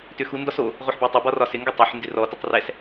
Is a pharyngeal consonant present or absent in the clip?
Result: present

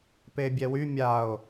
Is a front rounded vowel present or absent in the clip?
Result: present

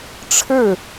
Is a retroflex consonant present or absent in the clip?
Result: present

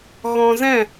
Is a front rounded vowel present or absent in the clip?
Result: absent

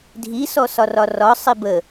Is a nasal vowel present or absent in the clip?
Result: absent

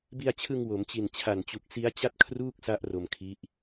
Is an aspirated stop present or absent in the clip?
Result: present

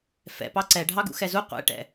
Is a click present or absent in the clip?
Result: present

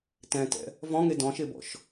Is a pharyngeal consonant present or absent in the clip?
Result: absent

